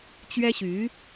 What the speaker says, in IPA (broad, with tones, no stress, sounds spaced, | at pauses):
t͡ɕ ɥ ɛ˥ ɕ y˧˥